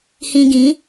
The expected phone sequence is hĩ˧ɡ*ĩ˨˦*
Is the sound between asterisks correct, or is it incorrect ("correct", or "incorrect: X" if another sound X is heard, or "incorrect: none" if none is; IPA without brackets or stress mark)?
correct